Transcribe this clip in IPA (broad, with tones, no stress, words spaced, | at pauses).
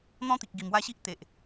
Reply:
n̪ɔ̃˦t̪i˨k̚ ɡi˨˩mwa˦ɕi˦ʔ t̪e˨ʔ